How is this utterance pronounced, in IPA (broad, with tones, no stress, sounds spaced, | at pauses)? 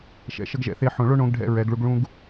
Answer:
ʃ ɛ̰˨ ʃ ə˦ ɡ ʒ ɛ̰˨˦ θ e˦ ħ õ˨ ɭ o˦ ɳ õ˨˦ ɡ ɖʱ ɛ̰˦ ɹ ɛ˨˦ ɡ ɭ u˦ ɡ ɭ ũ˦ ɡ